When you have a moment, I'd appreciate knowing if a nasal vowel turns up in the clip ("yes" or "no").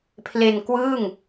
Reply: no